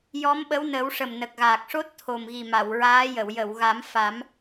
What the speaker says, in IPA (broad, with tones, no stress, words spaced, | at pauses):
jɔ˧˥mɓə˧˥wnə˨˩˦w ʂə˨˩mnə˨˩k̚ɣaː˨˩k̚ ʂo˦˥t̚ t̪ʰo˨˩m ɣi˨˩ma˨˩˨wɹaː˧˥jə˨˩˨w jə˨˩˨wɣa˨˩˦m fa˨˩˦m